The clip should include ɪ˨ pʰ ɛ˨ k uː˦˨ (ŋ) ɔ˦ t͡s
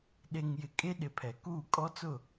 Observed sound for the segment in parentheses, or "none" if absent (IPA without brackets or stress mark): kʼ